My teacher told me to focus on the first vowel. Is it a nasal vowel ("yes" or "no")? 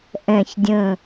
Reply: yes